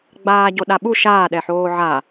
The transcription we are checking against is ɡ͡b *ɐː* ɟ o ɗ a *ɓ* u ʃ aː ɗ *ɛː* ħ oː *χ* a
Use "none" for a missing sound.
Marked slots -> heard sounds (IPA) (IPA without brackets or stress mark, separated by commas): aː, ɓ, ɛ, ʕ